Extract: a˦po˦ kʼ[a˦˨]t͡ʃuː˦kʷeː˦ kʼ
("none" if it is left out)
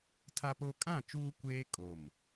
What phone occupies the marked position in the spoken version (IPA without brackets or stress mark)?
ã˦˨